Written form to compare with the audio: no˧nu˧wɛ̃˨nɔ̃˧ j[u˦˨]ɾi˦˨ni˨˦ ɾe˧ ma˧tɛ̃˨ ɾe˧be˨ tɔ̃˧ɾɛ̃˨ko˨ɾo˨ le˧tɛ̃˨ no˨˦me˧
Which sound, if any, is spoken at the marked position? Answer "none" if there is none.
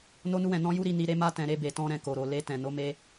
u˦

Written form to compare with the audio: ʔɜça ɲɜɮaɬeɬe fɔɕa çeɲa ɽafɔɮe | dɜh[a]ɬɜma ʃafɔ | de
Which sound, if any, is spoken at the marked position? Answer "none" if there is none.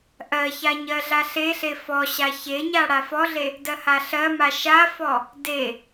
a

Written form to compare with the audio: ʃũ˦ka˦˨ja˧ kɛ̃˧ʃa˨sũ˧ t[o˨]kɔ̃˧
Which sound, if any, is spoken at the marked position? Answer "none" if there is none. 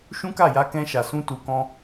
u˨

